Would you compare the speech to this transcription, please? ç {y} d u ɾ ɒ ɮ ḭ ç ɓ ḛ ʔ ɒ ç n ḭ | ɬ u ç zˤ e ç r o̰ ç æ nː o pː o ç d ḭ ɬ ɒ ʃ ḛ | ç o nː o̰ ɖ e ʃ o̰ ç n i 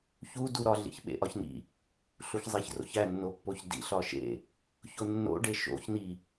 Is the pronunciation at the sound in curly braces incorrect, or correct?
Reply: incorrect: u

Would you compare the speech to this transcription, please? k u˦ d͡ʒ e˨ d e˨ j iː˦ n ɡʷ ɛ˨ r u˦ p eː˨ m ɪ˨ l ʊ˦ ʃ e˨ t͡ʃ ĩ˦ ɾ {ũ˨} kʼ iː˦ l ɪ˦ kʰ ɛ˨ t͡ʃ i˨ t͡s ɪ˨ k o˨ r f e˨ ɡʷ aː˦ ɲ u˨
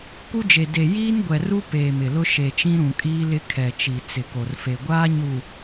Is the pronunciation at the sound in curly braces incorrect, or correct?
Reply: correct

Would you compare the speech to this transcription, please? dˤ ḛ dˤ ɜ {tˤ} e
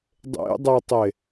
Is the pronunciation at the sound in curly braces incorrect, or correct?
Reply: correct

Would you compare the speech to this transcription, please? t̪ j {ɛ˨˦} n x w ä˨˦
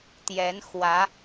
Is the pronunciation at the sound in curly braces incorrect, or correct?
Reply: correct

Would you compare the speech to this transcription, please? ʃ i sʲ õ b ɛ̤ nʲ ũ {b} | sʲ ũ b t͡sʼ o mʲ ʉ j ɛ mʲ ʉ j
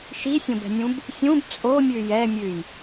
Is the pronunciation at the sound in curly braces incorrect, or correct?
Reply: correct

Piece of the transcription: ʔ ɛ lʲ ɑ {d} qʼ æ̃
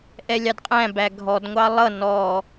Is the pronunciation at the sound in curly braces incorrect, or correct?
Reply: correct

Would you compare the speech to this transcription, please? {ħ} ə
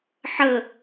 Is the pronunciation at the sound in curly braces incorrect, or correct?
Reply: correct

